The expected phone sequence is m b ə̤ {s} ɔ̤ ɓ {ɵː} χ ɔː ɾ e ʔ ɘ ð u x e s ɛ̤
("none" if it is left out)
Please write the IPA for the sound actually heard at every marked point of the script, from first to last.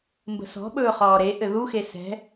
s, ɵː

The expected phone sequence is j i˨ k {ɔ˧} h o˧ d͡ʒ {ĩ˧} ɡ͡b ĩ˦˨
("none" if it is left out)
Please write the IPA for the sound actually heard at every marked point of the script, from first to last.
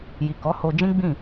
ɔ˨˦, ĩ˦

